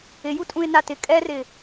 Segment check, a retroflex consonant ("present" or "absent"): absent